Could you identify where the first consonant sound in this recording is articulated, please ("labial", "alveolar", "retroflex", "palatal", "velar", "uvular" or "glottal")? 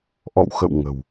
glottal